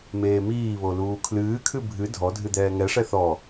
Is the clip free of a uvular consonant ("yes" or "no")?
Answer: yes